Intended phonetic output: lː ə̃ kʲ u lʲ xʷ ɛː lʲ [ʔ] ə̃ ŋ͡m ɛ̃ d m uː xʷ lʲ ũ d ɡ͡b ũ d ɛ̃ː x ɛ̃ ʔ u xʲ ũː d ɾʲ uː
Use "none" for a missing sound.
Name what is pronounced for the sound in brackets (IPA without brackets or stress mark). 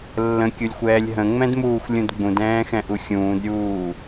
ɦ